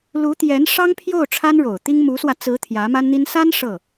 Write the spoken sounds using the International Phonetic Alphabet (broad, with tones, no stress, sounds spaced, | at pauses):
l u˧˥ t̪ j ɛ˧˥ n ʂ ɑ˥ ŋ pʰ j o˥˩ ʊ̯ ʈ͡ʂʰ a˥ n ɻ o˨˩ ʊ̯ t̪ i˥ ŋ m u˧˥ s w ä˧ t͡s ɹ̩˧˥ t̪ʰ j ä˧˥ m a˥ n n̪ i˥ n s a˥ n ʂ ɤ˥˩